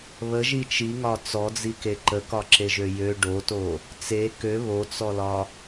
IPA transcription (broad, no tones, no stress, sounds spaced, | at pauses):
β ə ʒ i t͡ʃ i ŋ ɒ t͡s ɔ d͡z i k e ǃ ə k ɒ ǁ e ʒ ø j ø ɖ o t o | t͡s e k ø β o t͡s ɔ l ɒ